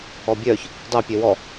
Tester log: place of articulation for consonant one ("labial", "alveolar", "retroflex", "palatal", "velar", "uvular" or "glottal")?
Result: labial